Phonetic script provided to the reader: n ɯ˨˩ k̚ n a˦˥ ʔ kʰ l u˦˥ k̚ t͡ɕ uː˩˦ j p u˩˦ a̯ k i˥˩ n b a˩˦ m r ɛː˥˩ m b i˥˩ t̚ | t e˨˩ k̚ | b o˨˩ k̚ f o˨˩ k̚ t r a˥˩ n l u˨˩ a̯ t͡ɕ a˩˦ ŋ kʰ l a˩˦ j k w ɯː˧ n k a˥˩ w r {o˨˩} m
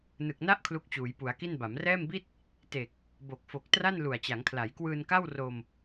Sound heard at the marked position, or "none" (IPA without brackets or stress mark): o˧